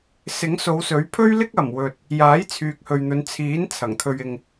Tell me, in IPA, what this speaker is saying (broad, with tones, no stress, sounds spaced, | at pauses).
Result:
s ɪ˨˥ ŋ s o˨˧ w s ɵ˨˥ ɥ pʰ ɵ˥ ɥ l ɪ˥ k̚ ɐ˨˩ m w ɵ˨ t̚ | j aː˨˥ j t͡sʰ yː˨ k̚ h ɵ˨ ɥ n̪ ɵ˨˧ n t͡sʰ iː˨˥ n t͡sʰ ɐ˨˩ ŋ t̪ʰ ɵ˧ ɥ ɪ˧ ŋ